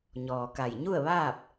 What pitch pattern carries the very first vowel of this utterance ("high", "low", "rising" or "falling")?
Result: low